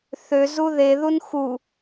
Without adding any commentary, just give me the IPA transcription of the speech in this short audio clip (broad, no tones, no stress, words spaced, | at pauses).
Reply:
θø zuðe ðunxu